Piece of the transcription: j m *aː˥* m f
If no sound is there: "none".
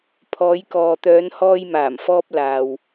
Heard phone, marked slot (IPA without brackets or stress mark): aː˨˩